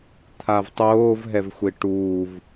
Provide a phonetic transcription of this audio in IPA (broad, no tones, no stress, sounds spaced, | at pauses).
t̪ʰ a v tˤ oː v ɦ ɛ v xʷ e ʈ uː v